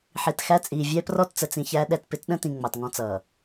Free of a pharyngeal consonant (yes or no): no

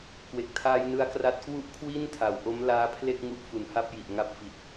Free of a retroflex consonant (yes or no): yes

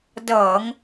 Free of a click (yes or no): yes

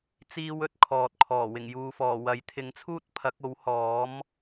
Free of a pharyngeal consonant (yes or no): yes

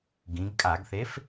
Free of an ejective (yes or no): no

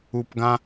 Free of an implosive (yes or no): yes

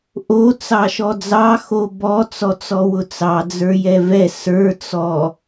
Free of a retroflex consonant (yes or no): yes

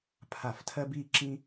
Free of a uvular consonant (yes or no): yes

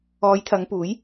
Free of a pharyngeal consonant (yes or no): yes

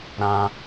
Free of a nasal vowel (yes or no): no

